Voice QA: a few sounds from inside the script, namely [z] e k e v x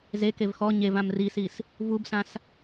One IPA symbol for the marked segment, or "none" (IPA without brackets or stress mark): z